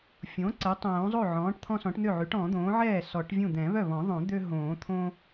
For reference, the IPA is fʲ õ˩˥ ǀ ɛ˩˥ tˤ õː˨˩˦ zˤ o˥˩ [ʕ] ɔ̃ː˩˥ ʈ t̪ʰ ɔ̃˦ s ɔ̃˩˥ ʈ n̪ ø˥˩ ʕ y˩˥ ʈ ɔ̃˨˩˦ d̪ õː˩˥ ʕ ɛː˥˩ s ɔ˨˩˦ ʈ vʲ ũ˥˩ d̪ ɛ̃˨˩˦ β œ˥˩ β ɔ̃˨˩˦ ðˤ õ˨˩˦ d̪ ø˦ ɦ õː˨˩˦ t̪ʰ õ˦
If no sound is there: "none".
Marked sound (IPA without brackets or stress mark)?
ʕ